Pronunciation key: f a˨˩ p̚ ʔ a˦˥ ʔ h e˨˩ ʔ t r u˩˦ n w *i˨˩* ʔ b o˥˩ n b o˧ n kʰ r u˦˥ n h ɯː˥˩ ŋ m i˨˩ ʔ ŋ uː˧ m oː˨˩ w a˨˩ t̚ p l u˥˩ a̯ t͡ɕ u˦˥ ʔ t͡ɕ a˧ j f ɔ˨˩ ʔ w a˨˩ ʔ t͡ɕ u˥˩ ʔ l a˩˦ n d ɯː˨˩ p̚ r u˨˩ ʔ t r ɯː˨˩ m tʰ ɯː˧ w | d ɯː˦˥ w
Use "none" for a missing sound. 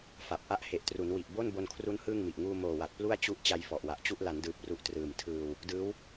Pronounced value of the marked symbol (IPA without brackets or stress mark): i˨˩